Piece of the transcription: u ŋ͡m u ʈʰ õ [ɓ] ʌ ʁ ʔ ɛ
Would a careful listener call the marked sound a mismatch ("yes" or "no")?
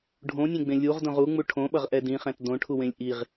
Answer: no